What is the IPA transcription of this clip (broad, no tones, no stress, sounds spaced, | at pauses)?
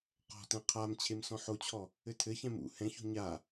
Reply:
q ɔ̤ t ɛ̃ qʰ a m t͡ɕʰ e m s ɔ̃ ħ o t͡ɕʰ ɔ | ɘ tʰ ɘ ç ɛ̃ m ṵ h ɛ̃ ç o̤ ɲ a